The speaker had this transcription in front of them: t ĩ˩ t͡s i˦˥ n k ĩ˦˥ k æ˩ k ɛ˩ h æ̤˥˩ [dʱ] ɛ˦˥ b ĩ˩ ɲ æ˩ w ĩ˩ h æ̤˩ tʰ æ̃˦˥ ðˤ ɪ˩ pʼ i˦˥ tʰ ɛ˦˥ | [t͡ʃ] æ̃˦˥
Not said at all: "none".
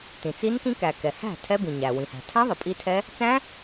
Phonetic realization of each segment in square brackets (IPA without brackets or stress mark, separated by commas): tʰ, t͡s